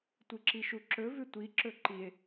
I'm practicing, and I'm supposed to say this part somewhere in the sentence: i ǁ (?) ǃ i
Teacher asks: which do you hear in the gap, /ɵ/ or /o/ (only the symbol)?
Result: ɵ